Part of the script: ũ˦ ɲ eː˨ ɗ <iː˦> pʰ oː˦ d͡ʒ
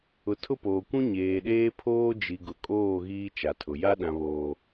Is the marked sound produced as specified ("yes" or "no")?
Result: no